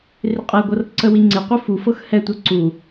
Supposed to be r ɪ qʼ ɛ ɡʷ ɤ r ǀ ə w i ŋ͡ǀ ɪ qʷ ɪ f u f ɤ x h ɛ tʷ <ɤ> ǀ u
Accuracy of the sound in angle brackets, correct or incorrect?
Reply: correct